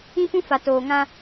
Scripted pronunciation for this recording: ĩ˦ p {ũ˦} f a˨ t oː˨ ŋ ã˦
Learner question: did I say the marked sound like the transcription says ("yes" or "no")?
yes